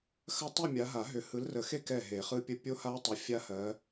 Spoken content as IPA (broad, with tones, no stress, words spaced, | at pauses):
xɐ˥˧ tˤɯ˥˧mʲa˨˦ɦa˨˩˦ɦʏ˨˦ hɯ˨˦lrə˨˩˦xe˥˧kɛ˧˩ ɦe˨˩˦χɯ˦˥pʲə˦˥ pʲo˦˥ha˦˥tˤə˨˦ fʲa˦˥hɜ˨˦